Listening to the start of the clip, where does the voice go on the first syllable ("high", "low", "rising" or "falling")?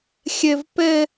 high